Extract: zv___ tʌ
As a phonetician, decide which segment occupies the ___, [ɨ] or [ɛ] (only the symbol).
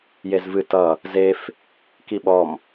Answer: ɨ